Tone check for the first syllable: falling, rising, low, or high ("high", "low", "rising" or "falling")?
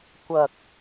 low